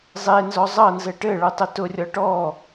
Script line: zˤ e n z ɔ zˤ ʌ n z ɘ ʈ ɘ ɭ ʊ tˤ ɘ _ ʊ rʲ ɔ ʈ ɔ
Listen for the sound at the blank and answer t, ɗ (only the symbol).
t